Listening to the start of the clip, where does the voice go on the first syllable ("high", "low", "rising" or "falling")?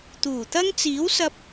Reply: low